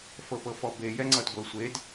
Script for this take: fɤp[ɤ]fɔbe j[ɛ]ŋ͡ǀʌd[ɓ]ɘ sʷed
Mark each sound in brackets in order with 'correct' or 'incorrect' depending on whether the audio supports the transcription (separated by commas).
correct, correct, incorrect